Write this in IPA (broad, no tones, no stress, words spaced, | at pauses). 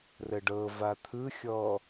rəɖɤ vat̪ʰɯxʲɔ